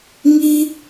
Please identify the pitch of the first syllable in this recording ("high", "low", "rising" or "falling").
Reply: high